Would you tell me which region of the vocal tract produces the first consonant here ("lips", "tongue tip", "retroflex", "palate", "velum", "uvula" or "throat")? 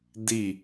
tongue tip